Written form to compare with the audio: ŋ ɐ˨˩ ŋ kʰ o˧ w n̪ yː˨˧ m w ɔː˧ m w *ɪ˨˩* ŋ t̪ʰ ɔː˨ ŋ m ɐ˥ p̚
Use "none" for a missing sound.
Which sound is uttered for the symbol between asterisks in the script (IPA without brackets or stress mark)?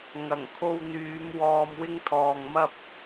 ɪ˥